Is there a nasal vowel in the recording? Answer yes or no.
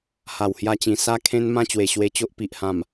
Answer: yes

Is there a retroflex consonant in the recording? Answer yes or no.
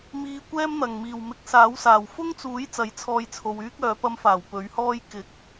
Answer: no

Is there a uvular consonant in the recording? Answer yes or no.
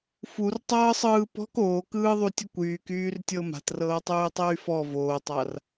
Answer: no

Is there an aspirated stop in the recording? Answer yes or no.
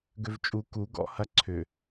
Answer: yes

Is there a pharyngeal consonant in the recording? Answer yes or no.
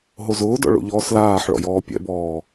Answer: yes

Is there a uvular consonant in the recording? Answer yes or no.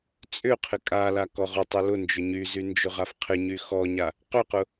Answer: yes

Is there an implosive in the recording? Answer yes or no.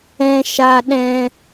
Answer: yes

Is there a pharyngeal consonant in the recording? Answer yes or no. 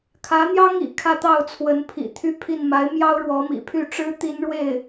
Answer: no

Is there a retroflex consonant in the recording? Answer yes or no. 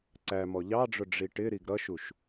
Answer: yes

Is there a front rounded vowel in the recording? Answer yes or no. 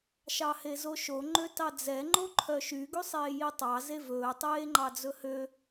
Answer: yes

